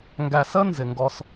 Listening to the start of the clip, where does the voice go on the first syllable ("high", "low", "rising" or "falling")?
low